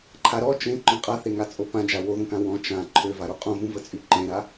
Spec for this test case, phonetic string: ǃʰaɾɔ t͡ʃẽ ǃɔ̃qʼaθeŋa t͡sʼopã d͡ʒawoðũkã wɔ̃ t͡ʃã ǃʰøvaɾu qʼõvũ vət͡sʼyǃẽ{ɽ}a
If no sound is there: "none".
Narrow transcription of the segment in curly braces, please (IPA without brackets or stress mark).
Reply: ɾ